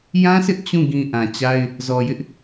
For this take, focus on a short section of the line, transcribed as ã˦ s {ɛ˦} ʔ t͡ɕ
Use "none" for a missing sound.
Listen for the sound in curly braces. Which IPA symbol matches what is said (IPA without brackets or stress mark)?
ɪ˦